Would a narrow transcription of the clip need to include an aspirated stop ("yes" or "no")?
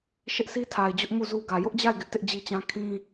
yes